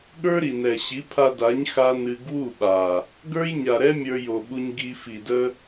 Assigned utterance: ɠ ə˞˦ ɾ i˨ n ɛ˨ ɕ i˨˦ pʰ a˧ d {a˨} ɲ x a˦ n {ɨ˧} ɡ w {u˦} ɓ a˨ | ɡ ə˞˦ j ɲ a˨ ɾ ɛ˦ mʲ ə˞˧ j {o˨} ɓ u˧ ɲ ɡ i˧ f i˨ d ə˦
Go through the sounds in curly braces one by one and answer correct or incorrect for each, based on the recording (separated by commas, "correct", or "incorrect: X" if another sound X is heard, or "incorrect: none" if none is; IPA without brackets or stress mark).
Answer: incorrect: a˨˦, correct, incorrect: u˦˨, correct